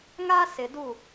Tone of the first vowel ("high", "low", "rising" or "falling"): high